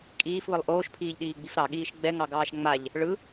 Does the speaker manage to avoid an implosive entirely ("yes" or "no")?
no